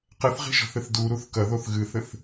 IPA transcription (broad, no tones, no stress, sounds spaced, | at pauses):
q ɛ θ ʁ i̤ ʒ ɔ̤ θ ɘ θ d u ɾ u θ k ɐ ð o θ ɣ ɨ θ ɘ θ